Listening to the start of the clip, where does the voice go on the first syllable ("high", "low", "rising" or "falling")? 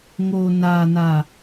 low